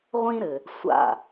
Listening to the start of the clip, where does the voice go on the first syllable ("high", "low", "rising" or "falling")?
high